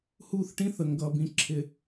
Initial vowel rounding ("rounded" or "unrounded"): rounded